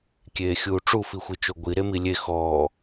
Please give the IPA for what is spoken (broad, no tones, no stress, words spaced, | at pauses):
kʲeːxʲuːʈ͡ʂu fixʷit͡ʃoɡʷi ɾemilʲe xɔː